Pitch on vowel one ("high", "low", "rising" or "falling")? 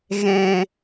low